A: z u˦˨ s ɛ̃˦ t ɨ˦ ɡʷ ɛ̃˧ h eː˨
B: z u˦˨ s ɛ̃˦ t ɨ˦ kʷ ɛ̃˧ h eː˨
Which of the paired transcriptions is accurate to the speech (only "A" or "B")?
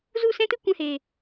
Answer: B